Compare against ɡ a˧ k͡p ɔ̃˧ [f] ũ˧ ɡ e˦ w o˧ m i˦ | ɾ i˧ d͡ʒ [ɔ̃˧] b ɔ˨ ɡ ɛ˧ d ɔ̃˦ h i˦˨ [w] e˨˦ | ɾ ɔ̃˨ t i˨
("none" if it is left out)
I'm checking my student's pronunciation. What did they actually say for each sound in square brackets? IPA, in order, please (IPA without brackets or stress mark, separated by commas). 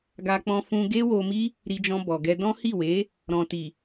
f, ɔ̃˧, w